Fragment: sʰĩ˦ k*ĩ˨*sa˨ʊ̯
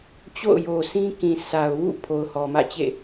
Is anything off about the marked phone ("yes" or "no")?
no